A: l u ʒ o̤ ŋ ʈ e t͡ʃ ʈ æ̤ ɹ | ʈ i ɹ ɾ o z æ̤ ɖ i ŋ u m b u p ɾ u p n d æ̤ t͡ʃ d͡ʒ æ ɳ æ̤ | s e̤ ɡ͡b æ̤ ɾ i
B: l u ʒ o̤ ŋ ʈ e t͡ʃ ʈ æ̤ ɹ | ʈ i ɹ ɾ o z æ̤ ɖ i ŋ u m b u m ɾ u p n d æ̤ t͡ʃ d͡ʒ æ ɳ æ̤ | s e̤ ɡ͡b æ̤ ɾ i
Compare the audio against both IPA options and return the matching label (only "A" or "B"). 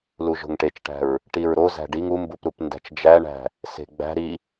A